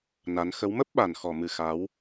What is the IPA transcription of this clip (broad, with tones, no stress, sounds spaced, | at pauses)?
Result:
n a˨˦ n x ə˨˦ w m ə˦˥ p̚ ɓ a˨˩ n x ɔ˨˩ m ɨ˨˩ x a˨˦ w